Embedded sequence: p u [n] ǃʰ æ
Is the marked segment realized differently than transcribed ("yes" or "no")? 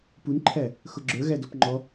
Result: no